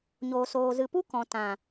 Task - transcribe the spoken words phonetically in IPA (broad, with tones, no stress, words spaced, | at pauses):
ɲoː˨soː˨zɨ˨pu˦ kɔ̃˨ tã˨